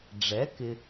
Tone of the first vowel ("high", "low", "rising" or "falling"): rising